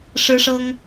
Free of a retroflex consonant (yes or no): no